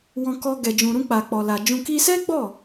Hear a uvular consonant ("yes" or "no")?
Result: no